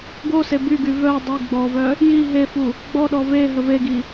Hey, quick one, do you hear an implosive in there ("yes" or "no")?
yes